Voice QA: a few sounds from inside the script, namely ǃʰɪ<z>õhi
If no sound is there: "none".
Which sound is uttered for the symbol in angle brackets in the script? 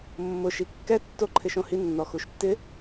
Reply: ʃ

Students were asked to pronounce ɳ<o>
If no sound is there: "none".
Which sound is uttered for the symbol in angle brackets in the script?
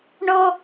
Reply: o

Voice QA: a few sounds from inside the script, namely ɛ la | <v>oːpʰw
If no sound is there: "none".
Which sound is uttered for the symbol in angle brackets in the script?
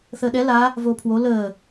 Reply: v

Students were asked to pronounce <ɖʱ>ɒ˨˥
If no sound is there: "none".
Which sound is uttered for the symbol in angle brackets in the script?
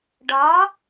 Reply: ɖ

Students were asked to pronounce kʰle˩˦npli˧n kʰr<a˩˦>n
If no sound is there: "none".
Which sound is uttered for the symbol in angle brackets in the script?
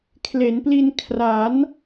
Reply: a˩˦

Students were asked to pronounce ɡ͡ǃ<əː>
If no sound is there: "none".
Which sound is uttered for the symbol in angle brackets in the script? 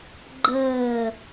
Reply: əː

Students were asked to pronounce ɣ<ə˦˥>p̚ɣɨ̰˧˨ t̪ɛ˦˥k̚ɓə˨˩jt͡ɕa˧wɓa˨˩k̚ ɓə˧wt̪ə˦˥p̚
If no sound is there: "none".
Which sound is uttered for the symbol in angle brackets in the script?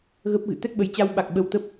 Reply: ə˦˥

